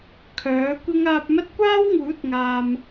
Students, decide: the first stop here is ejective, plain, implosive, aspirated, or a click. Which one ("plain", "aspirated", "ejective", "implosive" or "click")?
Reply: aspirated